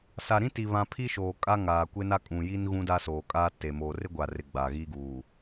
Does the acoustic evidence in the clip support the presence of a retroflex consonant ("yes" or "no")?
no